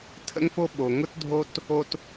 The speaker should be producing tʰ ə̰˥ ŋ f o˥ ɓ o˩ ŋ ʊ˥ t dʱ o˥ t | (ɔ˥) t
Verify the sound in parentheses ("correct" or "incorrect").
incorrect